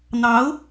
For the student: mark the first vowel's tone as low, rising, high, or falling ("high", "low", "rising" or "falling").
rising